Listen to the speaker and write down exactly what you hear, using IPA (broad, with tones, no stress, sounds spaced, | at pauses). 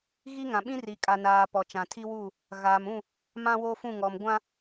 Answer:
ɣ i˦ ŋ ã˨ ɓ ĩ˦ r i˨ kʼ a˨ n aː˨ p ɔ˨ t͡ʃ ã˨ tʰ i˦ w u˦˨ | ɣ aː˨ m ũ˦˨ | m ã˦ w oː˦ f ũ˦˨ ŋ ɔ˨ m ɡʷ ã˦